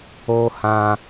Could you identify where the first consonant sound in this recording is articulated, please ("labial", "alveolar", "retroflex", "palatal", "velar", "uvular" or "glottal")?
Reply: glottal